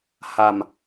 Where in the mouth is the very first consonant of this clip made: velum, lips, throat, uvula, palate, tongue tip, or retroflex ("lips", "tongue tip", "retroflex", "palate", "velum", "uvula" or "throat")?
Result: throat